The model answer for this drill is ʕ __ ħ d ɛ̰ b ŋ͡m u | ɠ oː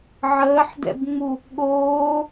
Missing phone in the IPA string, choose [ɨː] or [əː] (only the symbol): əː